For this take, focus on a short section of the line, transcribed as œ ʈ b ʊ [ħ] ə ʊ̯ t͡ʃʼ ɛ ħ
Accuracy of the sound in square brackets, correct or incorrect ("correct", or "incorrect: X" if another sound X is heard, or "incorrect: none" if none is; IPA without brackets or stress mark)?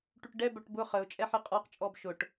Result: incorrect: χ